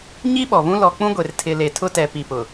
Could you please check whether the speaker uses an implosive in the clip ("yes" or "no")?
yes